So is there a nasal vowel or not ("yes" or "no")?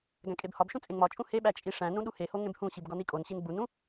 yes